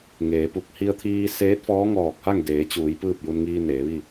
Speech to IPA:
ŋeː˩˧pu˥˨k̚ hi˧ə̯t̪ʰiː˧ seː˧˥t̚fɔː˧˥ŋɔː˧˩k̚ha˥˨ŋ deː˩˧t͡ɕuː˩˧j pɯː˥˨p̚ju˧nŋiː˧ neː˩˧ʋi˥˨

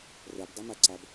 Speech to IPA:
rɤbdˤumaǀab

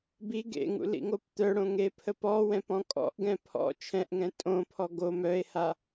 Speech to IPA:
bi ɡḛŋṵ lḭŋopt̪œɽõ ŋepʰəpɔwɛ̃p ɔ̃kʼɔ̰ʔɡɛ̃ pʰɔ̰ t͡ʃʰɛ̃ʔŋɛ̃ tʼõpʰɔ ɡo mœe̯ha

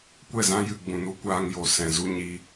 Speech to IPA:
kʷɛ˦˨zã˦jɨ˨ ɡ͡bũ˨n u˦kʷaː˧ŋ jo˨sɛ̃˨zu˦ ɲiː˧

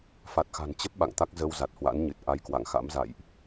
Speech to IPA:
fa˨˩t̚xa̤˨˩nt͡ɕə˦˥p̚ ɓa̰˧˨ŋt̪a˦˥k̚ zə˧wza˨˩t̚hwa̰˧˥nɲɨ˨˩t̚ ʔa˧jkwa̰˧˨ŋ xa̰˧˥mza̰˧˨jʔ

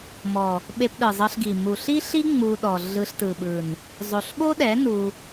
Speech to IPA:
mɔ˨ | ɓe˧pɗɯ˨zˤɤ˧ɬɡi˨ mu˨ɬi˦ɬi˦ ŋ͡mu˧ɗɔ˨ ɮɯ˧ɬtɯ˨ɓɯ˨n | zˤo˨ɬɓo˦ɗɛ˨˦ nu˧

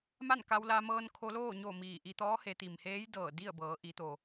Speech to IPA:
ma˥˨nka˧wla˧ mɤː˧nkʰo˧loː˥˨ ɲo˥˨miː˧˩ ʔi˧t̪ɔː˧˥ he˩˧t̪i˩mheː˧˥j dɤː˧˩di˥˨ə̯bɤː˩˧ ʔi˩˧t̪o˩

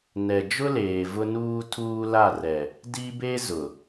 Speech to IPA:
nɛ˨d͡ʒʊ˦leː˨ vʊ˦nuː˦ tʰuː˦la˦˨rɛ˨ | di˦be˦ zʊ˨

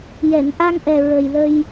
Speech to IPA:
jɛ˨˩˨n ʔa˧ŋʔɛ˨˩ ɹə˨˩jlə˧j

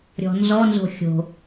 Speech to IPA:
ɾʲɔ̤nzɔ nzo̤xʲo̤

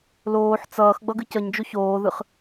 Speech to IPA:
loːħ t͡sʌːx ɡ͡bʌɡɨcʌɲd͡ʒoç oːðɯχ

